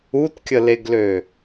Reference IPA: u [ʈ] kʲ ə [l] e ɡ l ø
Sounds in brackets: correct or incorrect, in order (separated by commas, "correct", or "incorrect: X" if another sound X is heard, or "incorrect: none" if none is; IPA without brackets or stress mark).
incorrect: t, correct